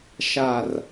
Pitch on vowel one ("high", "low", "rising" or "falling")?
falling